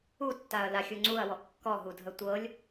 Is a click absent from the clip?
no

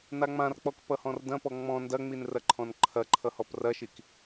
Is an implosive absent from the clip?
yes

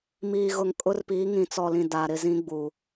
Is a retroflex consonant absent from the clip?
yes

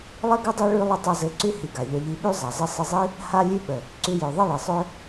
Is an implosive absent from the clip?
no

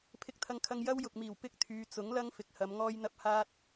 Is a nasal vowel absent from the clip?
yes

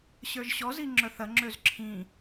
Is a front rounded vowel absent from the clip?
no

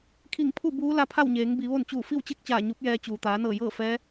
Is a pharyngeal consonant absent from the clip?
yes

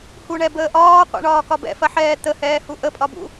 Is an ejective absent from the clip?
no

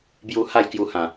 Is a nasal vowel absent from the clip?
no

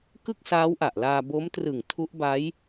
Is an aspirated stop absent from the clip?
no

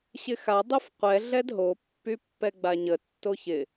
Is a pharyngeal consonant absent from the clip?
yes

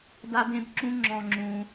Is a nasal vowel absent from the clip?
no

